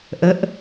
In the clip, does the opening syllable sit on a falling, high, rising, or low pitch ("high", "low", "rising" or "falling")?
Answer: rising